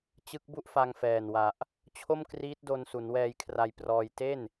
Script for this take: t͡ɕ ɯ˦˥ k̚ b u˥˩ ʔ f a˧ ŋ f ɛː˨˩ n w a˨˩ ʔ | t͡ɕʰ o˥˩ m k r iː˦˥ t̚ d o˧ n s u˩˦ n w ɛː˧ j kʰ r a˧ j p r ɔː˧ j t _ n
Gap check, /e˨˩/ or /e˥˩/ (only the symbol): e˥˩